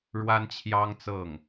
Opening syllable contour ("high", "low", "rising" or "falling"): high